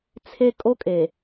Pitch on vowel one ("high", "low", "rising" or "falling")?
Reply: high